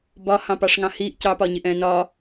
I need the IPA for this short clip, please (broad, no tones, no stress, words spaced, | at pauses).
bɒ hɑ̃pɑʂŋɑ̃hiːʔ cɑpɒɲɪʔɛ̃ː nɒ